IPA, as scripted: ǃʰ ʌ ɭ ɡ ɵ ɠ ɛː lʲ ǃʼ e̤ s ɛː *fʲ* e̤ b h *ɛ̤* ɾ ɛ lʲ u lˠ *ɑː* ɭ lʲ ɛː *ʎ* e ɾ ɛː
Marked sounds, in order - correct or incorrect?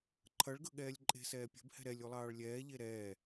incorrect: pʲ, correct, correct, correct

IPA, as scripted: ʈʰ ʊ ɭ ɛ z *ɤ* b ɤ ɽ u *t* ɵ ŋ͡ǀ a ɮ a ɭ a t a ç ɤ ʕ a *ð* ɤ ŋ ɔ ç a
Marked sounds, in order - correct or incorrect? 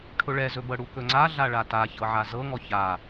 incorrect: ɵ, incorrect: k, incorrect: z

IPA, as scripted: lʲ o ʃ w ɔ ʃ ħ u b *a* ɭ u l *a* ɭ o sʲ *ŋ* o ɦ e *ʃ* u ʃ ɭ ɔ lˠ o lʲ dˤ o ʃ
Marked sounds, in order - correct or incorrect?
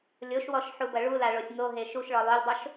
incorrect: ɐ, correct, correct, correct

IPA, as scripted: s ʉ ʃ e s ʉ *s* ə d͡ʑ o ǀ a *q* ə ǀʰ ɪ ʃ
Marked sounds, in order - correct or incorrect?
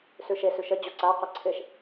incorrect: ʃ, correct

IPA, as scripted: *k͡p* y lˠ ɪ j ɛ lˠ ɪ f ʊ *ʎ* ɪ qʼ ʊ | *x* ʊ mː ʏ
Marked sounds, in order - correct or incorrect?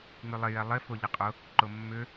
incorrect: ŋ͡m, correct, incorrect: ǃ

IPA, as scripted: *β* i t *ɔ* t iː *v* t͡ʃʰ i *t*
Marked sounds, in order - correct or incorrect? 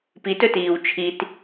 incorrect: p, incorrect: ɵ, incorrect: w, correct

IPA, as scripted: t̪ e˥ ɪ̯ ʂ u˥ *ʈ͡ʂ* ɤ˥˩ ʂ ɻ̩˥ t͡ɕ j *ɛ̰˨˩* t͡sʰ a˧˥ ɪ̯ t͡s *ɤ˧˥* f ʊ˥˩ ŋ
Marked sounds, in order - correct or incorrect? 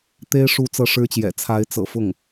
incorrect: t͡s, correct, incorrect: ɤ̰˨˩

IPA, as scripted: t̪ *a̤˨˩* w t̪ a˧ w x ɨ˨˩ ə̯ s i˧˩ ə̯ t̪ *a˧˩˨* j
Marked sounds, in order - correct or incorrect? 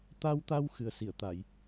incorrect: a˧, correct

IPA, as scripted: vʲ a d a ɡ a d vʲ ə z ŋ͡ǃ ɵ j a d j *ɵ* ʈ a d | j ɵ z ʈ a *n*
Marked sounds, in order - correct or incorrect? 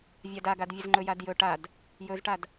correct, incorrect: d

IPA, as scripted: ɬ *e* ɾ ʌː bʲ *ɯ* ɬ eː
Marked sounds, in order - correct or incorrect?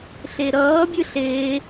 correct, correct

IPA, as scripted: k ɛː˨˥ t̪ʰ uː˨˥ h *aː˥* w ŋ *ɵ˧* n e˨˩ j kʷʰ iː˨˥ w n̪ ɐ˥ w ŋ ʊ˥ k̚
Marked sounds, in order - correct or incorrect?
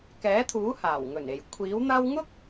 incorrect: aː˨˩, incorrect: ɵ˨˩

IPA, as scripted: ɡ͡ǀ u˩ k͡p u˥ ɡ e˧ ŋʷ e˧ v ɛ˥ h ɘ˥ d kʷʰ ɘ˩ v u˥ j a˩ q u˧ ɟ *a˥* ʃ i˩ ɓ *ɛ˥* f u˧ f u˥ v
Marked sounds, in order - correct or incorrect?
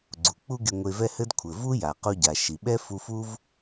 incorrect: a˩, correct

